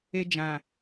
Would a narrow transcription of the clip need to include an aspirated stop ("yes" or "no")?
no